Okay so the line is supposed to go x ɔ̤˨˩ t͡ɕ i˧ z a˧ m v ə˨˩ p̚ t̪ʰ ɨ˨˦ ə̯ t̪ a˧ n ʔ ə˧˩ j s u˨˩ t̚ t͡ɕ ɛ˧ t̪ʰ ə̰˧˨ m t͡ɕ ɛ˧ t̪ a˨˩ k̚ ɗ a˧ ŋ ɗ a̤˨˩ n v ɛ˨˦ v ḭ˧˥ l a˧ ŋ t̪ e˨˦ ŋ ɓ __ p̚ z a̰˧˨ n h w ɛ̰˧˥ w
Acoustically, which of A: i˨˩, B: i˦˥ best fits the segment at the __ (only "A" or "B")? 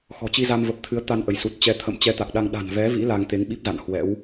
B